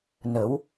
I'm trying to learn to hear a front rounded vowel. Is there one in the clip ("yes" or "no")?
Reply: no